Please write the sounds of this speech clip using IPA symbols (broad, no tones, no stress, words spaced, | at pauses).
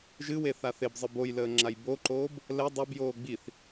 ʒɨwe θaθebzˤɨ bojləː ŋ͡ǁajboǃoːb | lɛ dˤobjoː ɡ͡biθ